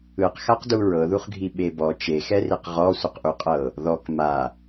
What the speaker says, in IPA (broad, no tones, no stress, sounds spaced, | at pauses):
ɯ q x a q d u ɹ ɤ ð u χ ɡʱ i ɓ e b ɔ t͡ʃ e x ɛ r i q ʁ ɔ sʷ ɯ q ʔ u qʼ ɤ | ð ɔ k m a